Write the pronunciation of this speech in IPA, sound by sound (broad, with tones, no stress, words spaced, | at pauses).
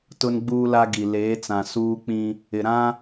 tʊ˦nɡ͡buː˦la˦ɡi˨ leː˨˦t͡sã˨ suː˦k͡pĩ˦ | ɪ˨ɾã˦